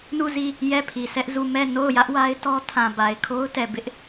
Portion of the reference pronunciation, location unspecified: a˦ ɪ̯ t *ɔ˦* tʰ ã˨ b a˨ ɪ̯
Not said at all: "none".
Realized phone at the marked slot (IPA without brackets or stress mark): ɔ˦